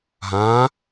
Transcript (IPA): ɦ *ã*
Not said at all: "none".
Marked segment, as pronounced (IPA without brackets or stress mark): ã